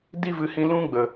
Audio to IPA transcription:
d i˦ v ɨ˨ h ĩ˧ l ũ˦ ɡ͡b ə˨

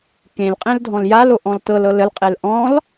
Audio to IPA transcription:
k ẽ l qʼ ẽ l dʱ ɔ̃ l j a l o ʔ ɔ̃ l t ɤ l ɤ l ə l qʼ e l ʔ ɔ̃ l

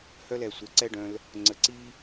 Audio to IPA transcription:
h œ˦ l ɛ˨ sʷ ɛ˨ ǀ ɛ˦ ɖ œ̃˧ l | ŋ͡ǀ ə˨ ǀ i˦

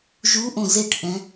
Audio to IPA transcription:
ʒ u ʔ õ z e ʈ ʔ ɛ̃

